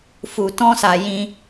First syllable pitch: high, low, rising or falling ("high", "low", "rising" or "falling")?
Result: low